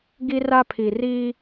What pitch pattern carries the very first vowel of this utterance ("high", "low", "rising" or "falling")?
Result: high